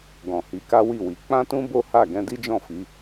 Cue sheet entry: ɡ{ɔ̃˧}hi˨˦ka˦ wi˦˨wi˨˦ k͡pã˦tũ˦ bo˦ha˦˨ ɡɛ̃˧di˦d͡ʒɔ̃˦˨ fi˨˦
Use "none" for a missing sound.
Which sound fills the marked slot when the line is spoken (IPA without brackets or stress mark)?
ɔ̃˨